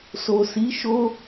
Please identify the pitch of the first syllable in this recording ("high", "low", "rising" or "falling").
low